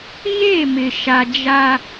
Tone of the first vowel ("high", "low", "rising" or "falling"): falling